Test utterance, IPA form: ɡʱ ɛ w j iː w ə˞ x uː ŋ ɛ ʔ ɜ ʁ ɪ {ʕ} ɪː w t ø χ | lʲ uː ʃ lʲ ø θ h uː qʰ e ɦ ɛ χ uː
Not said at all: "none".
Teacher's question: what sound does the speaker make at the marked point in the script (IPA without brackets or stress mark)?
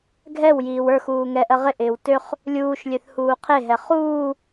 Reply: ʔ